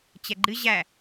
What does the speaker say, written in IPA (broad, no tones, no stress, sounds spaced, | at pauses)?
t͡ɕ ɛ ɡ͡ǃ ɨ ʑ æ